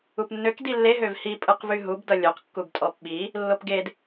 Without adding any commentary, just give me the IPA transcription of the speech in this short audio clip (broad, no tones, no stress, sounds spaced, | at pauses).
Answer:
u p nː ø k d i lː e ɦ ø v h i pʼ ɯ q v y ɦ u b d ʌ lʲ o q kː u b tʼ ɔ p ɓ i | lː o p ɡ e d